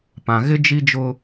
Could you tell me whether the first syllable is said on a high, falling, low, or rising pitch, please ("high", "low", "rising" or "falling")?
low